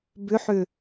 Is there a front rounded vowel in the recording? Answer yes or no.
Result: yes